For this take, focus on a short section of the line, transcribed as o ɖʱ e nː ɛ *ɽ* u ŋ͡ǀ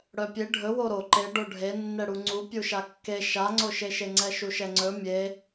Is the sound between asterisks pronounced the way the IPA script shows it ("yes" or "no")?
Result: yes